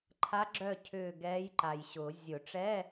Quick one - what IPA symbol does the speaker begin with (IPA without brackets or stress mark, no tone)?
ǃʰ